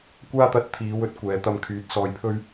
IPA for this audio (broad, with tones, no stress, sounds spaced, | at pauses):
kʷ aː˥ t̪ ɐ˧ t̚ t̪ʰ iː˨˧ w ɵ˧ t̚ kʷ ɛː˨ t̪ ɐ˧ m kʰ yː˨ t̚ s ɔː˧ j pʰ ɵ˥ ɥ